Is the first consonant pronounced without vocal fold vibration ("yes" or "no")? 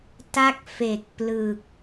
yes